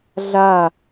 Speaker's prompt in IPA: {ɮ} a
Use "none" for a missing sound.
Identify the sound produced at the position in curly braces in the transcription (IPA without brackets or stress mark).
ɮ